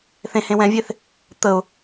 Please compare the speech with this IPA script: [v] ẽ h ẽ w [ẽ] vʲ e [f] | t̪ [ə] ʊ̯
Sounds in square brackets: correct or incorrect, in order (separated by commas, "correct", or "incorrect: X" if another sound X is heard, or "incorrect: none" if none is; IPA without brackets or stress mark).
incorrect: θ, incorrect: ɛ̃, incorrect: θ, correct